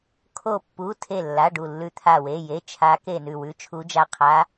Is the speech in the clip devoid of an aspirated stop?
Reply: no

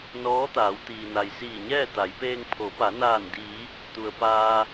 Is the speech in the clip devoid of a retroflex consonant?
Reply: yes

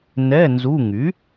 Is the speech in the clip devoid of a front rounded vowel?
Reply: no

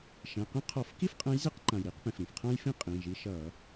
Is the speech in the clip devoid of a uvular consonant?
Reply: no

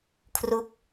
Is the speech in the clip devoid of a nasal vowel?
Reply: yes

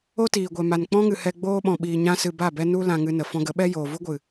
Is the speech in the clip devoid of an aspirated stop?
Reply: yes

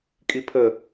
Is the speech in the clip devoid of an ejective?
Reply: no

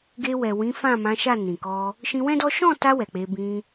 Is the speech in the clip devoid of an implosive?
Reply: yes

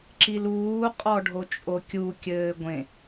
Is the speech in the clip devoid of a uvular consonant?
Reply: no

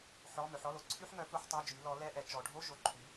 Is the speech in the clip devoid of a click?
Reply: no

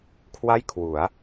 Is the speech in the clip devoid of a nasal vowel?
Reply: yes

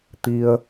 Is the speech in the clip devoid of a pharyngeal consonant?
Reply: yes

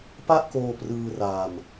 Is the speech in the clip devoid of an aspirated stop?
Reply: yes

